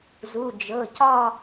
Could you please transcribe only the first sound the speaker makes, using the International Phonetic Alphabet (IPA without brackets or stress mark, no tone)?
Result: z